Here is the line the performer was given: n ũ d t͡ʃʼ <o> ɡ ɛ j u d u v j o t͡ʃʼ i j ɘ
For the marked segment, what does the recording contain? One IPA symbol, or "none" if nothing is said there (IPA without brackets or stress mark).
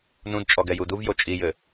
ɔ